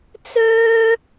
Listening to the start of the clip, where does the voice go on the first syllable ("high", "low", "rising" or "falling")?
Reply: high